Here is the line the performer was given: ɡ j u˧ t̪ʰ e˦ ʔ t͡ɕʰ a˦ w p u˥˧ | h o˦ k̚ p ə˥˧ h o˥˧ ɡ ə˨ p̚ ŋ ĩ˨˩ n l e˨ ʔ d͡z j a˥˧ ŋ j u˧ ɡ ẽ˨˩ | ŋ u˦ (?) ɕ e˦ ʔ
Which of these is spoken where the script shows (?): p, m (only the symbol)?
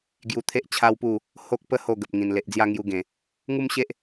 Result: m